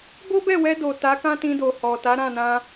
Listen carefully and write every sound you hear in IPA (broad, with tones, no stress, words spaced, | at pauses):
bo˦bɛ˦˨wɛ˧do˨ ta˨˦kã˦tĩ˧do˨ hɔ˨ta˨˦ɾã˦˨nã˧